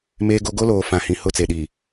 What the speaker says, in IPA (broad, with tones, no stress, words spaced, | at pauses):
meː˦ɡo˦ ɡo˦loː˨ fã˨hĩ˨ hʊ˦˨t͡se˨ɗi˨